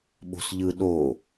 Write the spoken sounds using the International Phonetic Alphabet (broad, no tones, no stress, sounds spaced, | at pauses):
ɓ o̤ s ʎ ɯ ɗ o